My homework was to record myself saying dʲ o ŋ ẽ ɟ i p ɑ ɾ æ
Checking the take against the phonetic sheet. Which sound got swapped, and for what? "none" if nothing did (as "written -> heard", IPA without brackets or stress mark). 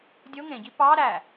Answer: none